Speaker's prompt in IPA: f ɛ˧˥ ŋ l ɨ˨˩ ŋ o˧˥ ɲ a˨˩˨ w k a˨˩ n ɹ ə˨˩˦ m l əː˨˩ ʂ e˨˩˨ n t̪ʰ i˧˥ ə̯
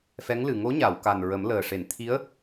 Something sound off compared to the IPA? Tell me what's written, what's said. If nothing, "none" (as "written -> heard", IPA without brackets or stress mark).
none